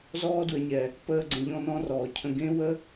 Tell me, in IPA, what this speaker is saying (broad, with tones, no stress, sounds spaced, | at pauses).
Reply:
z ɔː˦ d w ə˨˦ ɲ ɛ˨ | p əː˧ ɡ͡ǀ ə̃˨ ʎ ɔ̃˦ n ɔ̃˦ r ɔː˨ cʰ ə̃˧ ɡ ẽ˦ w ə˦